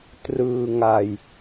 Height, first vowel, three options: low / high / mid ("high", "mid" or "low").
high